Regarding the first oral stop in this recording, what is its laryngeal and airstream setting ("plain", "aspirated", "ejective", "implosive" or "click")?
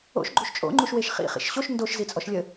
click